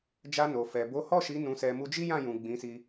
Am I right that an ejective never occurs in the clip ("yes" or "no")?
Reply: yes